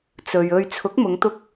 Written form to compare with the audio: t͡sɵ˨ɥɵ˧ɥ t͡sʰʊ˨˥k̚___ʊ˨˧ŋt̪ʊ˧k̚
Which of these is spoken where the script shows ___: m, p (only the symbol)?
m